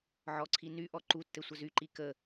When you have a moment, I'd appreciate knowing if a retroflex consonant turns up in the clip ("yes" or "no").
no